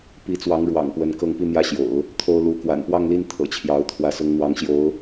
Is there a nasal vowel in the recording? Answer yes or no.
no